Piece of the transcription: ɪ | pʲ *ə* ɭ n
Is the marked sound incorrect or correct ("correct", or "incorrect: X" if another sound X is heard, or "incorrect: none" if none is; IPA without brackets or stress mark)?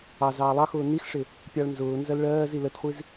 incorrect: ɑ